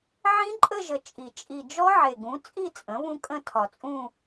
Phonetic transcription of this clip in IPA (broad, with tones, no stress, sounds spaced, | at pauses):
ʕ ĩ˦˥ ǃʼ ə˥˧ ʒ ə˨˩ t͡ʃʼ i˨˩ t͡ʃʼ i˨˩ d͡ʒ ɔ˦˥ ʕ e˨˩ ɡ ũ˩˥ t͡sʼ i˥˧ t͡sʼ ə̃˩˥ β ũ˦˥ kʼ ə̃˥˧ tʰ ɒ˨˩ t͡sʼ ũ˥˧